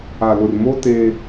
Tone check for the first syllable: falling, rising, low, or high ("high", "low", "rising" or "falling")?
low